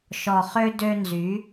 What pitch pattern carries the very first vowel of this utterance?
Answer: low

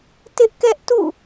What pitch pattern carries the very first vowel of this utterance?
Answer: high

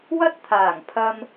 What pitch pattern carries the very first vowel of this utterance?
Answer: high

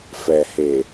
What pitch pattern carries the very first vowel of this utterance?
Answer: low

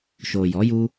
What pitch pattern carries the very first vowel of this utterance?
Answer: low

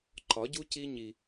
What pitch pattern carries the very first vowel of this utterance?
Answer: rising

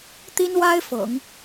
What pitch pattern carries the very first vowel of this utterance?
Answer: high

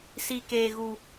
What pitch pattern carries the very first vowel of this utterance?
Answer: high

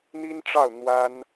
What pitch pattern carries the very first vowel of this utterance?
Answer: high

